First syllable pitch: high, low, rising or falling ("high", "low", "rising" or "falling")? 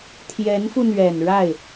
rising